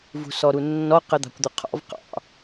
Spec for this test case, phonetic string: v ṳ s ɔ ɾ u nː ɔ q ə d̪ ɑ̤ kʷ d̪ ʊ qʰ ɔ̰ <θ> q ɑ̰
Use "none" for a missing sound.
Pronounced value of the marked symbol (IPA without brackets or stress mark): v